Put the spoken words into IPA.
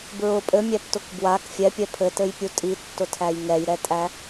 b ɹ ʊ pʼ ɘ mʲ æ p t ʊ k b w a k fʲ ɛ pʲ ɛ pʰ ɘ t ɘ j pʲ u tʼ i tː ʊ tʰ æ j ŋ ɛ j ɾ ɛ tʼ æ

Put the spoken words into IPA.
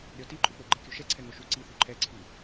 ɾʲ ɔ t i ǃʼ u k͡p o ɡ͡ǃ e kʲ u ʃ ɛ ǀʰ ɛ ŋ o ʃ u ǀ i θ u ǃʰ ɛ ǀʰ i

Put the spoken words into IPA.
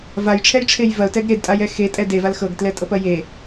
v a j ʈ͡ʂʰ ɛ j ʈ͡ʂʰ e j v ɐ ʊ̯ t ɛ ɡ ɾ e d tʼ a j ɛ x e tʼ ɛ d e v a l x ɤ ɡ t l ɛ tʼ ɤ p ɐ j e

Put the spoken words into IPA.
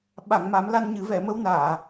ɓ a˨˩˨ ŋ m a˨˩˦ m l a˧ n ɲ ɨ˨˩˦ v ɛ˨˩˨ m ə˧ w n aː˨˩˨

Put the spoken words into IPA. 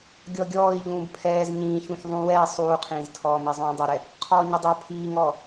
ɡʲ ɔ ɡʲ ɔː i̯ ʎ ũː b pʰ ɛː z ɲ ĩː ç ũ ç ðˤ ũ w ɛː sˤ uː qʰ ĩː z tʰ ɔː m i zˤ ũː dˤ ʊ ɾ ɛ | qʰ ɔː ɲ ʊ dˤ o pʰ iː ŋ ɔː

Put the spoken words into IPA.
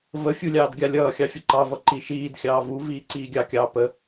v ə fʲ u lʲ ɑː d ɡʲ a lʲ ʌː xʲ ɑ fʲ ə ǃ ɑ v ʌ ǃ i ʃ iː d xʲ ɑː v u v iː ǀ iː ɡʲ ɑ kʲ ɑː p ə

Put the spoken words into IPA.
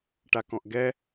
ʈ a k ɔ̃ ʔ ɡ ɛ

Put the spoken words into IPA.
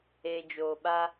eː˨ d͡ʒ oː˨ ɓ a˦

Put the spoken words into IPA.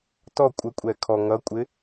t ɔ kʷʼ ə kʷʼ ɛ kʰ ɔ ŋ ʌ kʷʼ ɪ

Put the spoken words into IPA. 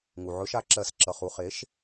ŋ u˩ ʕ ɵ˨˥ ʃ a˦˨ ǁ ɜ˨˩˦ s ǁ ʌ˩˧˩ χ u˦˨ χ e˨˥ ʃ

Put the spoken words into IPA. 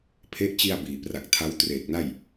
pʰ e˦˥ ʔ t͡ɕ i˧ a̯ b iː˩˦ p r a˨˩ k̚ tʰ a˦˥ w t r eː˨˩ k̚ n a˥˩ j

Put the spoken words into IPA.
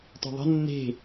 t ɔ̤ ðˤ ə̤ nː e̤

